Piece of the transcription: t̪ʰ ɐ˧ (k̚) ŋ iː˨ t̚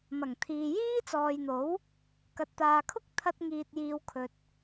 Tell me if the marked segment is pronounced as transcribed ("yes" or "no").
no